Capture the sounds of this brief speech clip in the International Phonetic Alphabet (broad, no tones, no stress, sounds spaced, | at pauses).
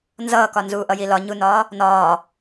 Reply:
n z ʌː k ɒ n z uː ʔ ʌ j i l ɒ ɲ u n ɒː | n ɒː